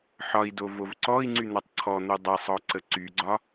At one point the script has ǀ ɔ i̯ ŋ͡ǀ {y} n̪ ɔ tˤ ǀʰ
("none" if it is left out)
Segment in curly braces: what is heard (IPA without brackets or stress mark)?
y